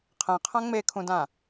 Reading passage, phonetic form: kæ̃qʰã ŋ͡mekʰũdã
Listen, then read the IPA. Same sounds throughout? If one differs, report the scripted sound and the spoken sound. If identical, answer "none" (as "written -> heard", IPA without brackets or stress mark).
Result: k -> qʰ